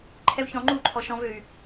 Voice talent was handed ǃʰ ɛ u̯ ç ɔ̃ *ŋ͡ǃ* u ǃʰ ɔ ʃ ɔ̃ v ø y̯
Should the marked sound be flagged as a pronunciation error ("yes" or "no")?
no